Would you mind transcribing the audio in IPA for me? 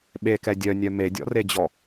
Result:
ɓekɛ dʲœnʲœ medʲɔ̰red͡ʑɔ

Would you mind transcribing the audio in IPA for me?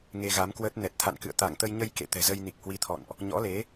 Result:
ŋe˧ɣa˨˦mkwəː˦˥t̚ nɛ˨˩t̚t̪ʰa̰˧˨nkɨ̰˧˨ə̯ t̪a˧˩ŋt̪ə˧jɲə˧j kḛ˧˨t̪ɛ̤˨˩zə˧jni˨˩k̚ hwi˨˦t̪ʰɔ̰˧˨nʔ | ɲɔ̰˧˥le˨˦

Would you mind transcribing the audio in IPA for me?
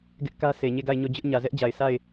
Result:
ɡɪ˦ʔkä˦ se˨ɲe˦˨ɡa˦˨ɪ̯ɲo˦˨ d͡ʑʊ˦ʔ ɲä˨zɛ˦ʔd͡ʑa˨ɪ̯ sa˦˨ɪ̯

